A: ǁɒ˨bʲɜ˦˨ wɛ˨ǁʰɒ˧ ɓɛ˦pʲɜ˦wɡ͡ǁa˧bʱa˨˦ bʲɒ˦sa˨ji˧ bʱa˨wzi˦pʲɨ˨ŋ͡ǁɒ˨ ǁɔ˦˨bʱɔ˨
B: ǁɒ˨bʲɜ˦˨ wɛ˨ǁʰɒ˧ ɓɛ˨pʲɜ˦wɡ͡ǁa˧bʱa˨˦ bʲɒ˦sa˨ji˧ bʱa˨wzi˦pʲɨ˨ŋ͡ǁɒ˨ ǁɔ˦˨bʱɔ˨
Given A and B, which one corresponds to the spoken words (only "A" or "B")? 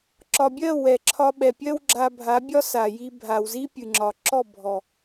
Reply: B